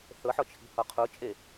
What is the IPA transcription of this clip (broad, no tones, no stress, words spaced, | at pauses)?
θɤħɔt͡ʃʰi̤hɔ qʰot͡ʃʼe